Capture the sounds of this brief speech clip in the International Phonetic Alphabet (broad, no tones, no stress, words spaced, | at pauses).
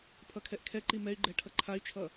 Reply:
pʰʌkʰɛʔkʰɛǃi mɛy̯ɡ͡ǃɛ ʈʰʌǃʰay̯t͡ʃʰʌ